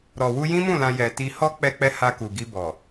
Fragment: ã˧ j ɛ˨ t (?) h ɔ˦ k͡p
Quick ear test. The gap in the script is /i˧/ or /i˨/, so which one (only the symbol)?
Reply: i˧